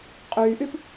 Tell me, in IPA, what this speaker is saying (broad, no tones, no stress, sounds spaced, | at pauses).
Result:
qʼ yː ʔ y p